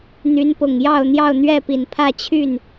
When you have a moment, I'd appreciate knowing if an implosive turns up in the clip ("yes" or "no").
no